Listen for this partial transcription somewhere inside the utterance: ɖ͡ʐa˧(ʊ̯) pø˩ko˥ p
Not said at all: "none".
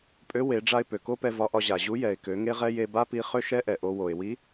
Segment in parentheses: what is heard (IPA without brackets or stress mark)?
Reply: ɪ̯